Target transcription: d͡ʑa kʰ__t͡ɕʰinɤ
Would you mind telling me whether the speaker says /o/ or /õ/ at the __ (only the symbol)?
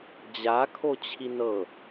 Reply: o